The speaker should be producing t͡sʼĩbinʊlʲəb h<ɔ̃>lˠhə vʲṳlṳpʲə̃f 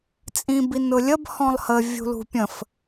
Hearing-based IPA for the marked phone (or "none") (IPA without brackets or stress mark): ɔ̃